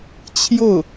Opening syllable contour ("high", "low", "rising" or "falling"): falling